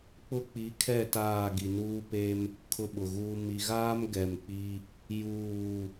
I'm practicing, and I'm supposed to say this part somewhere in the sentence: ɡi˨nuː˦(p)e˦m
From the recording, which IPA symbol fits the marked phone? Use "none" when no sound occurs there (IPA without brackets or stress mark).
p